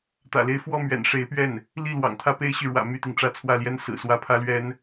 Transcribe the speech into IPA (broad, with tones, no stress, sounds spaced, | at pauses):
t̪ ä̰˨˩ l e˥˧ ɪ̯ f w ɔ˥˩ m ɥ ɛ̰˨˩ n ʂ e˧˥ ɪ̯ p ɥ ɛ˥˩ n | l i˥˩ l w ɑ̰˨˩ ŋ t̪ʰ ä˥˩ p e˥ ɪ̯ ɕ y˨ ɻ w ä̰˨˩ m y˥˩ t̪ i˩ ŋ ʈ͡ʂ ä˥˧ t͡sʰ w ä˥˩ l j ɛ˥ n s ɹ̩˨˩ s w ä˥˩ pʰ ä˥ l ɥ ɛ˥ n